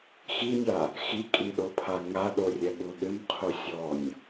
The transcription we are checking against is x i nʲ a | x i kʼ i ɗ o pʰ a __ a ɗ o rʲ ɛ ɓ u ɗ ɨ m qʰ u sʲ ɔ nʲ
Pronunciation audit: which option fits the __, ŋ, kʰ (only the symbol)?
ŋ